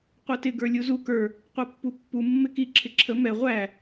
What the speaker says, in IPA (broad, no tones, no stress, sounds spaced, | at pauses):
qʷ ɛ t ɪ ɡ ə˞ lʲ u z u k ə˞ | qʷ ɛ pː u pː u mː ɪ k i ǁʰ ɪ ǁʰ ə m ɛ ʁʷ æ